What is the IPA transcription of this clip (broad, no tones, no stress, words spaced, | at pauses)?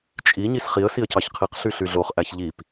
t͡ʃʼi ɲisχiə̯ siə̯cɑçqʰiq ɬyɬyɮoχ ʔæçʎip